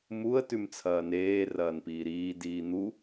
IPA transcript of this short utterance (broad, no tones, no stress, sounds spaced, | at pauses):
m u ə̯ t ʉ m t͡sʰ ɐː n eː r ɐː n p iː ɾ iː d iː n̪ u